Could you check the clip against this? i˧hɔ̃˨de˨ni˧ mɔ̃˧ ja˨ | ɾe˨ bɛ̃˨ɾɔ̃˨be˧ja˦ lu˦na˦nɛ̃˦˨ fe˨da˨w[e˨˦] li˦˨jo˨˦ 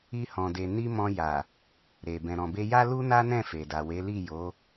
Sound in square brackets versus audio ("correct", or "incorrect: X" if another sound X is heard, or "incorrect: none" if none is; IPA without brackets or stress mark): correct